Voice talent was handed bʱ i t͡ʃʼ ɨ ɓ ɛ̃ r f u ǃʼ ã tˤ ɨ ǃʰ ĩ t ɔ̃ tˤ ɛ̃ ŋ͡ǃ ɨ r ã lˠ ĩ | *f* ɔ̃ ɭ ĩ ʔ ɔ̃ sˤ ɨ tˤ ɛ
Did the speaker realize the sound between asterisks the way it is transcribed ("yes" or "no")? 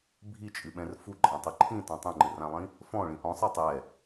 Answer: yes